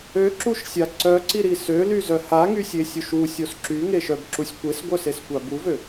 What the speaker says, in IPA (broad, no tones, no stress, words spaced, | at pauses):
øǁuʃsʲa ǀœǀiɾi sølyzœ haŋysʲesʲuʃ usʲos ǁyŋeʃœbǁusʲ kʷesɡʷœseskʷa buvø